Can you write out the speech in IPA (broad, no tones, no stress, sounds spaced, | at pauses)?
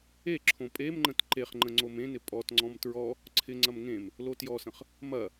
e ǁʰ õ pʼ e m ŋ͡ǃ ə̃ t ǃ e χ ŋ͡ǃ ə̃ ŋ͡ǀ o m ẽ n ɪ pʼ ɔ t ŋ͡ǀ ɔ̃ m t ɹ ɔ | ǀʰ ɪ ŋ͡ǀ ɐ m ŋ ẽ m | l o t j ɔ s ə̃ χ | m ɐ